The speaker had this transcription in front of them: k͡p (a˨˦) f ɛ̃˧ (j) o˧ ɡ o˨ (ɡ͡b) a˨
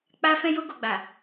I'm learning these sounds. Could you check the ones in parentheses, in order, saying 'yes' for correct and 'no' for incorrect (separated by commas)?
no, yes, yes